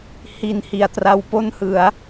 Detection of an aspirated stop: absent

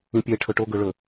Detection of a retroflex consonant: present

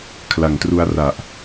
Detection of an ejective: absent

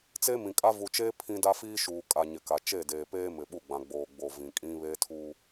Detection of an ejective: present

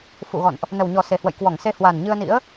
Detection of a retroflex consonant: absent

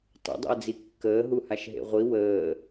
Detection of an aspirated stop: absent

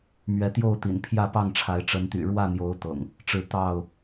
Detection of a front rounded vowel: present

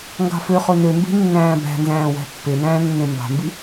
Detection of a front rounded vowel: present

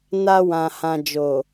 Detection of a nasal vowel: present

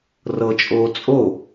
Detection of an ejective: present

